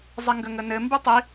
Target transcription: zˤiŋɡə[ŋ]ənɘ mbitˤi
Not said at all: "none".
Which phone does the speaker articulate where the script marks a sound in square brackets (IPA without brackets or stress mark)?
ŋ